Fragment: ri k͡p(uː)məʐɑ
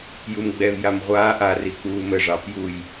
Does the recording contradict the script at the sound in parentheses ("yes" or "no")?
no